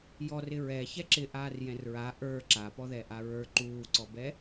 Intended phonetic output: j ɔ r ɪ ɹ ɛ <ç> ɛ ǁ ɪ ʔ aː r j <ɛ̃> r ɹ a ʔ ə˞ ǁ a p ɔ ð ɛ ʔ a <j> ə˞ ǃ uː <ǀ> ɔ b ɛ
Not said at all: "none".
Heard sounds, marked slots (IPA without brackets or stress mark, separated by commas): ç, ɛ̃, ɹ, ǀ